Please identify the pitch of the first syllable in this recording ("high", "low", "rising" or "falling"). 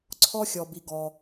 high